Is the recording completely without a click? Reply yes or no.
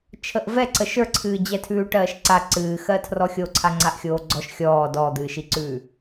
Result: no